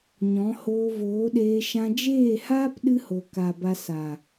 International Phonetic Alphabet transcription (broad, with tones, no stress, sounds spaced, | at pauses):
ɲ ɔ̃˨˦ h oː˧ v oː˨˦ ɗ eː˧ ʃ ã˧ d͡ʒ eː˦˨ h aː˦ p ɗ ɨ˦ h o˨ k a˨ b a˧ s a˨